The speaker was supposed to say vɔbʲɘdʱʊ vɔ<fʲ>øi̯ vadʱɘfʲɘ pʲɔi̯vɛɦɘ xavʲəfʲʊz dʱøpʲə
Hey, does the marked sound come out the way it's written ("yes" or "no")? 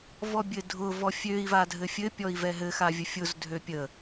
yes